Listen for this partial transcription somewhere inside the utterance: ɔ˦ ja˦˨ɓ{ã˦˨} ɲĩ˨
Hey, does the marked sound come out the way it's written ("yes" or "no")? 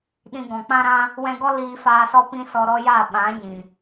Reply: no